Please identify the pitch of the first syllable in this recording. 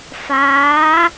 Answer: rising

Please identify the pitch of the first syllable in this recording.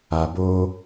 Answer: low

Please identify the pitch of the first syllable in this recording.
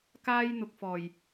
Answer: high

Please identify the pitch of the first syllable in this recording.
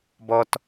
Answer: high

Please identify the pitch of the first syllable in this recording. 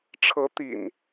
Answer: rising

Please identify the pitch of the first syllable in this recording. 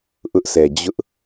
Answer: high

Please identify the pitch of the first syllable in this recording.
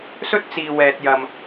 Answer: high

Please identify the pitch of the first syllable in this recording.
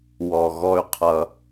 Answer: low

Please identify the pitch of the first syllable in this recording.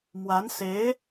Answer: rising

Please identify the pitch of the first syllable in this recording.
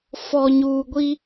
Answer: low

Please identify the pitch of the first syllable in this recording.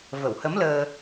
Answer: low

